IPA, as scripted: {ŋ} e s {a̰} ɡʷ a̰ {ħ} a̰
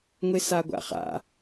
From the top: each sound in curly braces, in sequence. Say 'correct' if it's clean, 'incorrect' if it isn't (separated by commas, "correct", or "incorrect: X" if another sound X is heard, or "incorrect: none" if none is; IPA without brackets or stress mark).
incorrect: ŋʷ, incorrect: a, incorrect: χ